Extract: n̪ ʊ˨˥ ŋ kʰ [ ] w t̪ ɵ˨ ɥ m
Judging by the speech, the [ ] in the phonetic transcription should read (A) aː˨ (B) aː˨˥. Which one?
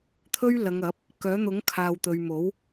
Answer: A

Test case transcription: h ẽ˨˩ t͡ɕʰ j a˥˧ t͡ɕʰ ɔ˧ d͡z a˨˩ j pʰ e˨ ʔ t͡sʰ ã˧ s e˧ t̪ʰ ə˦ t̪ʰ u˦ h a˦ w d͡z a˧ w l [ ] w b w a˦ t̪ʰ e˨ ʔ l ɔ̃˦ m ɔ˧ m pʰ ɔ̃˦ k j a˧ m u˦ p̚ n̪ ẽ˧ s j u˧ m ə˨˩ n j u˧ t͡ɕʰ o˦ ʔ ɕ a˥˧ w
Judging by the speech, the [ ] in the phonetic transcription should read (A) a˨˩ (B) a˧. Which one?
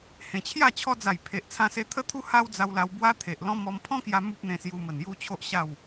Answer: B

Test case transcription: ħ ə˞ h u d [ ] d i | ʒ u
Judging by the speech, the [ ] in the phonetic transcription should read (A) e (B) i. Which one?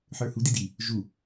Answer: B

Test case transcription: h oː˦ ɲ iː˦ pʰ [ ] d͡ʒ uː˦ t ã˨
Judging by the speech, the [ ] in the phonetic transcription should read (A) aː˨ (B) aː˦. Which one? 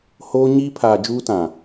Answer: A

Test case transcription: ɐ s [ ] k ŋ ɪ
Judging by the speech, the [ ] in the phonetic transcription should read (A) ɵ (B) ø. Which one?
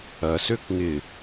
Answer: B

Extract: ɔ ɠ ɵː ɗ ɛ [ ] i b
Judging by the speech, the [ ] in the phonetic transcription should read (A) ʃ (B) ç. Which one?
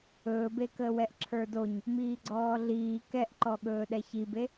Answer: B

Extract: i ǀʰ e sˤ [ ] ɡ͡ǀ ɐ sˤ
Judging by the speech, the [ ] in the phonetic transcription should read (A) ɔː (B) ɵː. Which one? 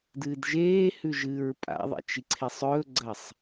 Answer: B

